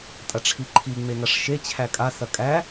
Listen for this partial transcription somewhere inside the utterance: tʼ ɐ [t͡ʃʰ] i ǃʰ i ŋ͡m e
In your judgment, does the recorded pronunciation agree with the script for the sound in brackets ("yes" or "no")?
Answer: no